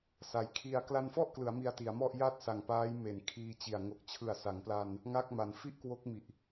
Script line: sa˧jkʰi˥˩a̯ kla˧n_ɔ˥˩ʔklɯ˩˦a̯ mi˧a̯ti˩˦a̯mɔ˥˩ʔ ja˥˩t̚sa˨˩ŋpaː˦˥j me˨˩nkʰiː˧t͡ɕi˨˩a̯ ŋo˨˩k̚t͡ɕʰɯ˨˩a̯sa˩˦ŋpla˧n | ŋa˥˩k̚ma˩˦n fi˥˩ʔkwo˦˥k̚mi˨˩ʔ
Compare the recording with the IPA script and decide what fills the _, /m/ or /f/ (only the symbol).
f